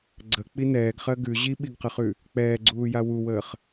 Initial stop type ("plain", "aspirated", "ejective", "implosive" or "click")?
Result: click